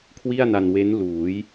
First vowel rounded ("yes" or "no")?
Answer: no